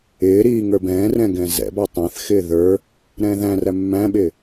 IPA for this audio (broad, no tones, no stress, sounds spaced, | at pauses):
ɪː ɾ iː ŋ ə˞ b ɛ̃ː r ɛ̃ ɡ ɛ̃ z ɛ̰ b ɑ tˤ æ̃ θ x ɪː ð ə˞ | ɾ ɛ̃ː ð æ̃ r æ mː æ̃ ɓ ɪː